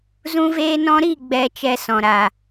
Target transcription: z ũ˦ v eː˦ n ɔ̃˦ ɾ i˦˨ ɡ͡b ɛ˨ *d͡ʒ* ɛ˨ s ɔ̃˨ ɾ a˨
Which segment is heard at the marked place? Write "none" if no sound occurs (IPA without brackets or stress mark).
t͡ʃ